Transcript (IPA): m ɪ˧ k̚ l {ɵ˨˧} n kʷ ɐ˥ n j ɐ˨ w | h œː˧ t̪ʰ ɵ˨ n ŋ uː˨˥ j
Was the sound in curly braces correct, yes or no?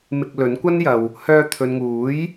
no